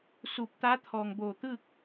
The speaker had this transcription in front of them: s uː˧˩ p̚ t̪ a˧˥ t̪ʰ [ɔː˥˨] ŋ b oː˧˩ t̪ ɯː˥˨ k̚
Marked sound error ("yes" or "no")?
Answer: yes